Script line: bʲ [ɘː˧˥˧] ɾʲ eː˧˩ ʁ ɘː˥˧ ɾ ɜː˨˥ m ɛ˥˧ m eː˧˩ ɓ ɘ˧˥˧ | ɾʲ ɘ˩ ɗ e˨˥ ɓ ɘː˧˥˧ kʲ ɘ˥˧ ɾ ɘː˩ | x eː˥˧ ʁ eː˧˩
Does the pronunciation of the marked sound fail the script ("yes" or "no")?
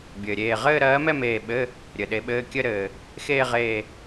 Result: yes